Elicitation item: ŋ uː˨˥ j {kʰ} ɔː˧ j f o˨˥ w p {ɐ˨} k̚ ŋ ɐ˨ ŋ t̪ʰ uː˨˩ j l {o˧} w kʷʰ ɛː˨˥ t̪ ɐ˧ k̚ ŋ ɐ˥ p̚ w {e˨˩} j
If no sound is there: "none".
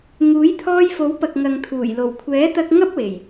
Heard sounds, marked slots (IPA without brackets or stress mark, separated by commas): t̪ʰ, ɐ˨, o˨˩, e˨˩